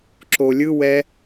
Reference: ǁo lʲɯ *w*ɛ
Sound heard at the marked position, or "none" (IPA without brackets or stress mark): w